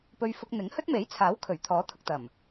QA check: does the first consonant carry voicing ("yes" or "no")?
no